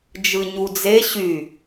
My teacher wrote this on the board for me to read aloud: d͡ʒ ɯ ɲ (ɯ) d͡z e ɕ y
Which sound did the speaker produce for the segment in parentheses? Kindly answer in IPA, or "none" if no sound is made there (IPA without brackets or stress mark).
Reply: u